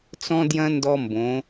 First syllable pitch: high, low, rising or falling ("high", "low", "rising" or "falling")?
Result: high